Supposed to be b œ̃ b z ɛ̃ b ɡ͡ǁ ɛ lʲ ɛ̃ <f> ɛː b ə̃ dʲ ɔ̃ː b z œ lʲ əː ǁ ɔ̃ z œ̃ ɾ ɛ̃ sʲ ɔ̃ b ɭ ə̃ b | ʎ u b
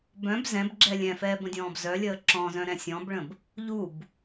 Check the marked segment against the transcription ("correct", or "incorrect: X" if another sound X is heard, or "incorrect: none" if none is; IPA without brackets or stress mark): correct